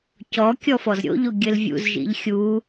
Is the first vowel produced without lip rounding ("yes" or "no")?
no